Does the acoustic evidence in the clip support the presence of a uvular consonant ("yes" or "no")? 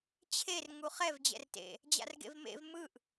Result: yes